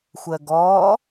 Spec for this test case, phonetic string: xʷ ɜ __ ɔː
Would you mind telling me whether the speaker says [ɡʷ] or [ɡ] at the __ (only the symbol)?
ɡ